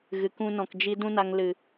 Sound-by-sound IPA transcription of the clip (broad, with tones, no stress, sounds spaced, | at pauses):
ɣ ɨ˨ k ũ˧ n ɔ̃˨ k d͡ʒ i˦ d ũ˦ n a˧ ŋ l ɨ˨